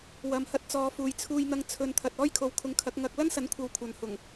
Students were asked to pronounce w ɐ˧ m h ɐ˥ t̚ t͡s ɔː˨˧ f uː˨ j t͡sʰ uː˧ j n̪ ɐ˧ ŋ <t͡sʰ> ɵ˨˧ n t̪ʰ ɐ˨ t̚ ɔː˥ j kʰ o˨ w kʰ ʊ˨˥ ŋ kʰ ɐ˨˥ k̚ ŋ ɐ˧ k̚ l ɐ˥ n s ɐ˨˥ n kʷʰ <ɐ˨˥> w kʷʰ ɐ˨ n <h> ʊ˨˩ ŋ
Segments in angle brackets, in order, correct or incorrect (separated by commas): correct, incorrect, correct